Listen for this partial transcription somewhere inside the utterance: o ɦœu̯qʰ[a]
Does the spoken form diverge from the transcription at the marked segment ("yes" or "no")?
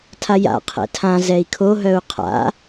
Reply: yes